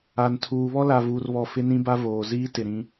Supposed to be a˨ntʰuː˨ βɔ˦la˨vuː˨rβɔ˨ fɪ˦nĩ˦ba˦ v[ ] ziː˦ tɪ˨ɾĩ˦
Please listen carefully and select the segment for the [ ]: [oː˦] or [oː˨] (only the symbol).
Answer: oː˨